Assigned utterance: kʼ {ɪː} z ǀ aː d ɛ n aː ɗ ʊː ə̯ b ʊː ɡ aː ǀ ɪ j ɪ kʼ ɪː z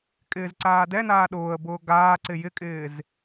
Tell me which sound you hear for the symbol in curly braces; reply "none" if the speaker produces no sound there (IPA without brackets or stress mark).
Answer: ɪː